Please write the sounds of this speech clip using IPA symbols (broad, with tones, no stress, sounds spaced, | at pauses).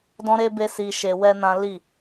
d ɔ̃˦ ɾ e˦ b e˦ s i˧ ʃ e˧ w ɛ˦ n ã˦ l i˦˨